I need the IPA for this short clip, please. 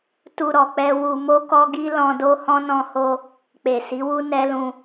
t u˧ ɾ ɔ˨ k͡p ɛ˧ w u˧ m o˦ k ɔ˦ ɡ i˦ l ɔ̃˧ d o˦ h ɔ̃˦ n ɔ̃˧ h o˧ | k͡p e˨ s i˨˦ w u˦ n ɛ˦ l ũ˧

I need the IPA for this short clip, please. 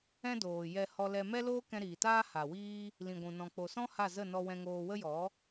ɛ̃˦ d oː˨ j ɛ˧ h ɔ˧ l ɛ˧ m ɛ˦ l oː˦ k ɛ̃˧ ɾ iː˨ t aː˦ h a˨ w iː˦ | l ĩ˨ ɡʷ ũ˨ n ɔ̃˨ k͡p o˨ s ɔ̃˦ h a˦˨ z ə˦˨ n ɔ˧ w ɛ̃˧ ŋ oː˧ w ə˦ j ɔ˨˦

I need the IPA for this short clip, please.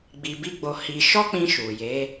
ɡ͡b i˧ b i˦ ɡ͡b o˧ h i˧ ʃ ɔ˦ k͡p ĩ˧ ʃ u˨ j e˨˦

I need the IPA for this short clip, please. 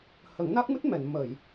h ə˨˩˦ ŋ n a˦˥ k̚ m ɨ˦˥ t̚ m ɛ˨˩˨ n m ə˨˩˨ j

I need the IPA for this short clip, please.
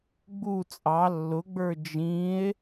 ɡ͡b u t͡sʼ ɑ lː ʊ ɡ͡b ə˞ d͡ʒ ĩ e̯

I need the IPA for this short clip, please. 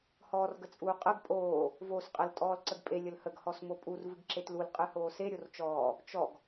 h ɔː r ɡ ə t͡sʼ uː qʼ ə ɡ pʼ oː | v oː s qʼ ə l tʼ ɔː l ǀ ə ɡ pʼ e lʲ ə l h ə ɡ h ɔ s m o pʼ u r v ɨ ɡ ǁ e t l u l qʼ ɨ h oː s e ɾʲ o r t͡ʃ ɔː | t͡ʃ ɔ ɡ

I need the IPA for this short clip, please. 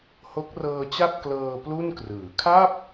h o˦˥ k̚ r ɤː˧ t͡ɕ a˥˩ p̚ k l ɤː˧ p l u˥˩ n k r ɯː˩˦ kʰ a˥˩ p̚

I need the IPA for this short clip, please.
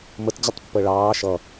m ə t d͡ʑ ʌ tˤ pː əː ɭ ɑː ʃ ʌ

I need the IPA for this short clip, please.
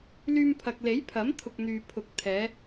l yː˧ m pʰ ɐ˨ k̚ l e˨˥ j pʰ ɐ˨˥ m t̪ʰ ʊ˧ k̚ n̪ yː˨ pʰ ʊ˨˥ k̚ t̪ʰ ɛː˨˥

